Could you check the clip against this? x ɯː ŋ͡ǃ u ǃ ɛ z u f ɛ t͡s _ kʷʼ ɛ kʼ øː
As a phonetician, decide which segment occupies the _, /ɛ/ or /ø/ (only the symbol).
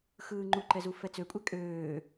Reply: ø